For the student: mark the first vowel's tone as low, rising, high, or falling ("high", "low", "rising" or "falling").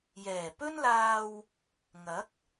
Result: low